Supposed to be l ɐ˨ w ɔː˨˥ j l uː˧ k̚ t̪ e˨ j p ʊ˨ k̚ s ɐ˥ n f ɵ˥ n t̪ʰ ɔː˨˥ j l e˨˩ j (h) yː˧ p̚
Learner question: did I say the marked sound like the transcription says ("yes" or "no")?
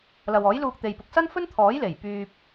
no